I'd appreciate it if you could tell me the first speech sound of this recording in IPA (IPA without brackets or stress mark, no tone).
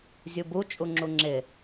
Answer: zʲ